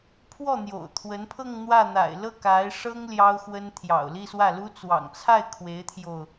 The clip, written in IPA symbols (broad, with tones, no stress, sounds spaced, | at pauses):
pʰ w ɔ˥˩ n̪ j o̰˨˩ ʊ̯ t̪ʰ w ə˧˥ n pʰ ɤ˥˧ ŋ n̪ w ä˥˩ n̪ a̰˨˩ ɪ̯ l ɤ˥˩ k a˧˥ ɪ̯ ʂ ɤ˥ ŋ l j ɑ˥ ʊ̯ x w ə˥ n t̪ʰ j ɑ̰˨˩ ʊ̯ l i˥˧ s w ä˥˩ l u˥ t͡s w ɑ̰˨˩ ŋ t͡sʰ a˥˩ ɪ̯ kʰ w e˧˥ ɪ̯ t̪ʰ j o˧ ʊ̯